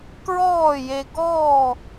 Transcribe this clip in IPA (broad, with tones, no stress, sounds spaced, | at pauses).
k ɹ ɔː˥˨ j e˧ ɡ ɔː˥˨